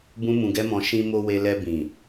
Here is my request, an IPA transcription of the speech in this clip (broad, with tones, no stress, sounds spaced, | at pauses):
b ũ˦ m ũ˧ ɡ ɛ˦ m ɔ̃˧ ʃ ĩ˧ m o˧ w e˧ l ɛ˧ b ĩ˨